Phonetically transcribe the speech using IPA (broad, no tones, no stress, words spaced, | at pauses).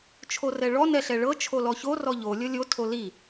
t͡ʃʰorɛɭɔ nɛɬɛɭɤ t͡ʃʰolɔço rɔʎo lʲɤlʲo tʰoli